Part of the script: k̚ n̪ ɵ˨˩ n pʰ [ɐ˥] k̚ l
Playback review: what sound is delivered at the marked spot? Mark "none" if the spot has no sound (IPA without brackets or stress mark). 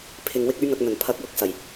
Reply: ɐ˨˥